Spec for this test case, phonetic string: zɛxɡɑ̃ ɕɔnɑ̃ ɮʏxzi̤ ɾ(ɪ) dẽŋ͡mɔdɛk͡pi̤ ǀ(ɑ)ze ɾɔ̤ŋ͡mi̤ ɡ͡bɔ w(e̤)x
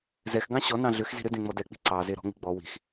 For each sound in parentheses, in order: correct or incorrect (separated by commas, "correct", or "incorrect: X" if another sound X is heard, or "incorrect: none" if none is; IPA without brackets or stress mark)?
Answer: incorrect: ʏ, correct, incorrect: i̤